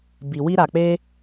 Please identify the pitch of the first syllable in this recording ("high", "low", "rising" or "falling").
low